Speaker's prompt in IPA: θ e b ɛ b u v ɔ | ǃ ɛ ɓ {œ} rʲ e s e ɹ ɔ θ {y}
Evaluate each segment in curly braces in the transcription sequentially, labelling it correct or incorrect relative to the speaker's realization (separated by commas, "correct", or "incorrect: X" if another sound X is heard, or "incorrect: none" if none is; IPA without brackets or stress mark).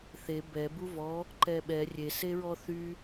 incorrect: ɛ, correct